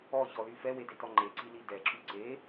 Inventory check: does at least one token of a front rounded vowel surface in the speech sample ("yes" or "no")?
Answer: yes